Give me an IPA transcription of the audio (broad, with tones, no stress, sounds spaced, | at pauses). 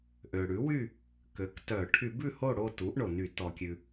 ʔ ø˩ ɽ ʉ˩˥ w y˥˨ | k ø˩˥ k t œ˧˩˧ ʈʰ y˧˩˧ b ʉ˥˨ h o˥˨ ɽ o˥˨ t u˩˥ ʔ ɳ o˩ n y˧˩˧ t ɔ˩ kʲ ʉ˩